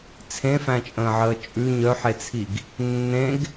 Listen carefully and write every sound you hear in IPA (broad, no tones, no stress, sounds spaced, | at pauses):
t͡sʰ ẽ f æ̃ t͡ʃʼ ə̃ː ʕ əː t͡ʃʼ ʉ ɲ œ ħ e t͡sʰ i ɡ | nː ẽ ɡ